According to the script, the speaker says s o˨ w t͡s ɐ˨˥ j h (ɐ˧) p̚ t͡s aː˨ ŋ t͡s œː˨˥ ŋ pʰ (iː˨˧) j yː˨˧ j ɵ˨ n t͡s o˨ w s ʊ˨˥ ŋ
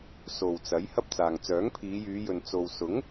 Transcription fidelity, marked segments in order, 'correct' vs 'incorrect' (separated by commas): incorrect, correct